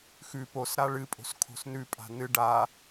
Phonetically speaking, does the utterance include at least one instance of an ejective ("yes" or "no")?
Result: yes